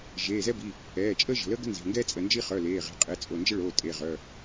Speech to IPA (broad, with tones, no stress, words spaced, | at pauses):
ʒeː˩˧˩zɛ˥bi˩˧˩ | ɛː˩˧˩t͡ʃʼəː˥ʒə̤˩˧˩ləː˥ ɡə̤˥nze̤˩˧˩ŋɡɛː˥ t͡sʼə˩˧˩nd͡ʒi˥ χœ˩˧˩leː˩˧˩ ʁe̤˩˧˩ qʼe˩˧˩ t͡sʼo˩˧˩nd͡ʒə˥ɭoː˩˧˩ tʼe˩˧˩ʁœ˩˧˩